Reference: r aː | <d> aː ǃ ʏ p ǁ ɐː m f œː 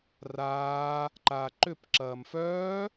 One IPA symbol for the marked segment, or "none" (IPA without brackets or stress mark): ǃ